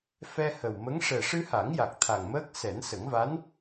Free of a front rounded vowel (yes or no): yes